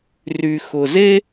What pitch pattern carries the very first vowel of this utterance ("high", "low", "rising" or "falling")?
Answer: low